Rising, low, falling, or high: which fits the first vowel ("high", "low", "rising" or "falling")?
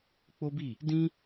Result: high